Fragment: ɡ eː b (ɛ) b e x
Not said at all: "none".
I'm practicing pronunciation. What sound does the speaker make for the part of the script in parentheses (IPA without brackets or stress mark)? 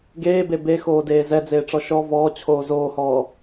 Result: e